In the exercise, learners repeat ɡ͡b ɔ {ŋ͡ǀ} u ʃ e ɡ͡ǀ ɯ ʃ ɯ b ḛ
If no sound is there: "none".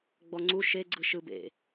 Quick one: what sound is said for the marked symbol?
ŋ͡ǀ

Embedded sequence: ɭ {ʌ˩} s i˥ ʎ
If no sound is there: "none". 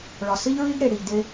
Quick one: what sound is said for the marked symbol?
ɒ˩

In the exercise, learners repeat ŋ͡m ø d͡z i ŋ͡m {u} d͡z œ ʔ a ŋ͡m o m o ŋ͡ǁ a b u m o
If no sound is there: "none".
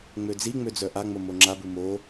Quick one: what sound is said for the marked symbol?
ø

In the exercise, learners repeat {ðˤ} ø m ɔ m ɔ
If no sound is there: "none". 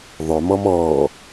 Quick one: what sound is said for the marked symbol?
ðˤ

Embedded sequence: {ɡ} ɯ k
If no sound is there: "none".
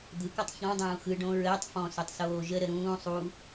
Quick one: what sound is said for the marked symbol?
d̪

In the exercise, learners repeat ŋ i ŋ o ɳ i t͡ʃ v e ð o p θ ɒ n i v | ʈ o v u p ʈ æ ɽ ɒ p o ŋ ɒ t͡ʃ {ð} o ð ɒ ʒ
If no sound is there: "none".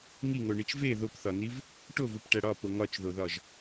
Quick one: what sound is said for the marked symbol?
ð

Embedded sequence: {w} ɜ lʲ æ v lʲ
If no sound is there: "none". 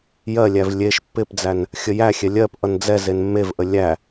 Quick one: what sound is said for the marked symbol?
j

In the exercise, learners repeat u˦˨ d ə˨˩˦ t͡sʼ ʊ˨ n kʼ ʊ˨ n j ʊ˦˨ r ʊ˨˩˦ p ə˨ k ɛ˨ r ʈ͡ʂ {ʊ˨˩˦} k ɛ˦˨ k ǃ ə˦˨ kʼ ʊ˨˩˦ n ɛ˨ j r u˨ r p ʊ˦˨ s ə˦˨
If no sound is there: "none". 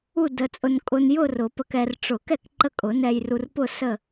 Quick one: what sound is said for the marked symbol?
ʊ˨˩˦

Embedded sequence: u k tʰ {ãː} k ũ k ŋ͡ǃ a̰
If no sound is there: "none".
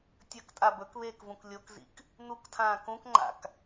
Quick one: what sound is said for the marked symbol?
ãː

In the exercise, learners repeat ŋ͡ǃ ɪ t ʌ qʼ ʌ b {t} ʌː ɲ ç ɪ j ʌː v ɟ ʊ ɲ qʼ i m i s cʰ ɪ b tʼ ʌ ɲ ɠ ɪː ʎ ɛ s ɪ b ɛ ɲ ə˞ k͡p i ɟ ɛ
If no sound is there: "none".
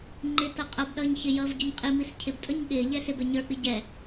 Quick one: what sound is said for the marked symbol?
ɗ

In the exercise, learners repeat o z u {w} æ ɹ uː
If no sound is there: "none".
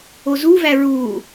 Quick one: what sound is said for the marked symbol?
v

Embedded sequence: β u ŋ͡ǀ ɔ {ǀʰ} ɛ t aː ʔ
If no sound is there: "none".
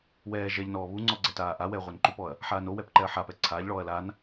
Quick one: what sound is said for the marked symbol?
ɡ͡ǀ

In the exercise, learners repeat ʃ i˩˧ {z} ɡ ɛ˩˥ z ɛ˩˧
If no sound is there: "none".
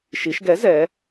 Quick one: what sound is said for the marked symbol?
ʃ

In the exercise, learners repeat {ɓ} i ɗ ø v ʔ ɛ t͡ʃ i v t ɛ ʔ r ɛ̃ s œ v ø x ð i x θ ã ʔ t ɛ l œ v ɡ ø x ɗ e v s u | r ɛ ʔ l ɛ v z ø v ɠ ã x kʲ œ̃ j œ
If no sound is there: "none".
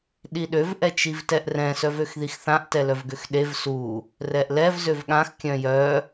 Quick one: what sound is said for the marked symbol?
ɗ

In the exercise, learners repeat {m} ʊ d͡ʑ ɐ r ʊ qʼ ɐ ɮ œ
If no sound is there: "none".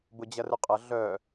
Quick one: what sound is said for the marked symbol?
b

